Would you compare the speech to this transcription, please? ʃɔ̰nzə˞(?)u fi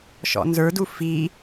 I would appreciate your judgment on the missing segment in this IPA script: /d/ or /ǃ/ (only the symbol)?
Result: d